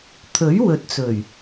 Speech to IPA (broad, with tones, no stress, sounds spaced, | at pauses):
t̪ʰ ɵ˨˥ ɥ w ɵ˨˥ t̚ t͡s ɵ˨˩ ɥ